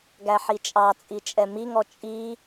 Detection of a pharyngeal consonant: present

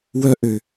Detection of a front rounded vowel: present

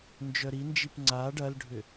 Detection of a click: present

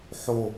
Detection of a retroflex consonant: absent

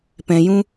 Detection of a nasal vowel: present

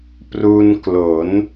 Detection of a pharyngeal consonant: absent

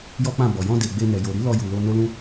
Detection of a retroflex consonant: absent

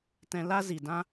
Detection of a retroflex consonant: absent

